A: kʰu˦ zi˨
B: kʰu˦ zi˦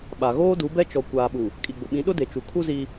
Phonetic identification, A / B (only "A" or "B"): B